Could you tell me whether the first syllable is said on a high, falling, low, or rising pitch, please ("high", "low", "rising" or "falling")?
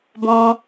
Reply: high